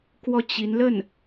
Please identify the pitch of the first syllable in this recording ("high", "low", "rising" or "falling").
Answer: falling